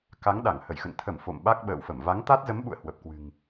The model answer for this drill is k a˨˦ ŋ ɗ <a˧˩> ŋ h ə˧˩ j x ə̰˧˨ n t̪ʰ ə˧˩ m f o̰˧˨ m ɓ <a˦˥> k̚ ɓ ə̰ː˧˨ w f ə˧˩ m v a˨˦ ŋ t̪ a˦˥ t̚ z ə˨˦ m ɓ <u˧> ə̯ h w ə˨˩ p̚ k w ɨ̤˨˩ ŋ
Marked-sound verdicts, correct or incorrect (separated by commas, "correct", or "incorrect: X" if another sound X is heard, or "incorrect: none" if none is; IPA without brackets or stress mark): correct, correct, incorrect: ṵ˧˨